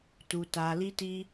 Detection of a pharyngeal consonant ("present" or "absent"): absent